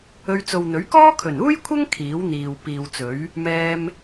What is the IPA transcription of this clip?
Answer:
ɵ˧ɥt͡so˨wn̪ɵ˨˥ɥ kɔː˥kʰɵ˨˩nuː˥jkʷʰɐ˥ŋ kʰiː˨˥wn̪iː˨w piː˨wt͡sɵ˨˥ɥ | mɛː˥m

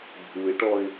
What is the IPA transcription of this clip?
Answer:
bʱuɪ̯ʈɔɪ̯

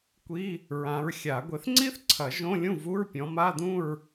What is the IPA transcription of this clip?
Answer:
kʷi˧˥˧ | ɹã˨˦ɹxʲa˨˩˦ ɡʷe˨˦θŋ͡ǀi˥θǀʰɐ˨˩˦ ʒõ˧˥˧ lʲũ˥˨vu˧˥˧ɹ pʲɔ̃˨˦ma˧˥˧ dũ˥˨ɹ

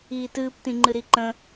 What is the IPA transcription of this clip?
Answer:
iːtɨːptĩŋ͡ǃɨ ɾiǃə̃

